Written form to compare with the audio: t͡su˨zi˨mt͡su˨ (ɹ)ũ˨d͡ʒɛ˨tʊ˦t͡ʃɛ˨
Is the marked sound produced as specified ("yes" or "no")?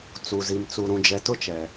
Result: no